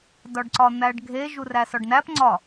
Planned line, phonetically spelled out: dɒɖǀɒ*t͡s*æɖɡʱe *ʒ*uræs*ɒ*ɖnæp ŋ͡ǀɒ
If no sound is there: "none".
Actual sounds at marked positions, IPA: n̪, ʒ, ɒ

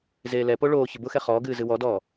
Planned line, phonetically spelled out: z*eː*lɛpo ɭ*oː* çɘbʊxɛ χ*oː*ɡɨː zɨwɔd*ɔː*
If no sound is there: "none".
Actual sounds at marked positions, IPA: eː, oː, ɔː, ɔː

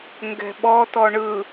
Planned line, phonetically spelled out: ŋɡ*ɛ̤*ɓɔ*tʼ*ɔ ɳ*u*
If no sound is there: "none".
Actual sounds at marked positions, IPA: ɛ̤, t, ɯ

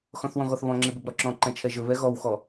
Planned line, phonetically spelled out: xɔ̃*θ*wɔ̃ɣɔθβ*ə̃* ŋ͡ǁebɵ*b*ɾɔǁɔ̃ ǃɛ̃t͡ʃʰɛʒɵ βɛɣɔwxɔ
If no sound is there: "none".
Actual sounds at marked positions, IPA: θ, ɔ̃, b

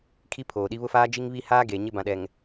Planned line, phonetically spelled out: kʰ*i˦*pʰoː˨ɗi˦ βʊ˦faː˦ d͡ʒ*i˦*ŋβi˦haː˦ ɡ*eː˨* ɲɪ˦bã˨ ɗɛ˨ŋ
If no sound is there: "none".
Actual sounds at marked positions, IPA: i˦, i˦, eː˨

